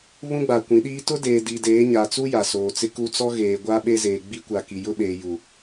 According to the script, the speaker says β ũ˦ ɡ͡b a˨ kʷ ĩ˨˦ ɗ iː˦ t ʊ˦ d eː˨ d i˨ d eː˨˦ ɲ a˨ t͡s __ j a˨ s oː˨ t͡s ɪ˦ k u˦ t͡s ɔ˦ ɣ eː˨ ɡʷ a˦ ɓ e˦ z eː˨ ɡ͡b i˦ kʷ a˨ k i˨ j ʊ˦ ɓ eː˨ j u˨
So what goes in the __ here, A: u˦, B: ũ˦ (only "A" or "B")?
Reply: A